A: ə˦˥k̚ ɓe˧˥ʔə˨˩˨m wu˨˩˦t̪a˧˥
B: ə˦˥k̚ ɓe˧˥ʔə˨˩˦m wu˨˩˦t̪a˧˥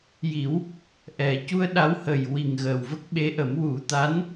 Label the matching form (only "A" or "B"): B